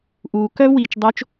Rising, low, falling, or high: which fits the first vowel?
low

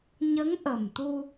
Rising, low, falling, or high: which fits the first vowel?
rising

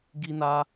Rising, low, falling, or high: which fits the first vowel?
high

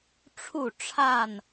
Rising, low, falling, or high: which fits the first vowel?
falling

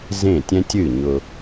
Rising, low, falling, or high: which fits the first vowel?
falling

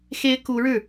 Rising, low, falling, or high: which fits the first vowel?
high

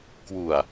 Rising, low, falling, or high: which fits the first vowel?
low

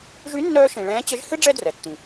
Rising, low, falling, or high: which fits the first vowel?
rising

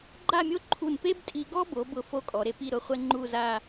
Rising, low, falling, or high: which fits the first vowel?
falling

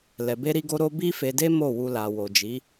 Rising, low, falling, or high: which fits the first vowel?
low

